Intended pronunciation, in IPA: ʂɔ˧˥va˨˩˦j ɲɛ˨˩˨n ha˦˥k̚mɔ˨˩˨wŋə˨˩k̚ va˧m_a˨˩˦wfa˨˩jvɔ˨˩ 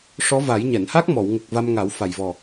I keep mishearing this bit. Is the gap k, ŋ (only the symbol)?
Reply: ŋ